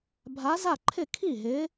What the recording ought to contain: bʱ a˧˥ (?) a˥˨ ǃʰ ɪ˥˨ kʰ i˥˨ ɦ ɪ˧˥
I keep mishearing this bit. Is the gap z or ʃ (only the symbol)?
z